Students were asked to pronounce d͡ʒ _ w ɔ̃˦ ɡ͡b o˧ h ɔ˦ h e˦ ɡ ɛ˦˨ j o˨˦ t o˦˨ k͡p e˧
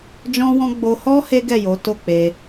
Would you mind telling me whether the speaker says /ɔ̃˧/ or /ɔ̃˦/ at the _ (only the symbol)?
ɔ̃˦